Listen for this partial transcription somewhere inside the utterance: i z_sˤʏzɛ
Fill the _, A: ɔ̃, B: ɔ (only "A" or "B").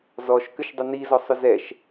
B